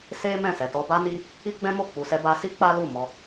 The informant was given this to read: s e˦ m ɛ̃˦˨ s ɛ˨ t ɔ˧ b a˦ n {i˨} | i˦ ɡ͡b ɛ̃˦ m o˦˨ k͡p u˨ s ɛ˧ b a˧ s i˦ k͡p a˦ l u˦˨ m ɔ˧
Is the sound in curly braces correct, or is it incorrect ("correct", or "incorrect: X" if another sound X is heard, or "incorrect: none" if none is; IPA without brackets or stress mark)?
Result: incorrect: i˦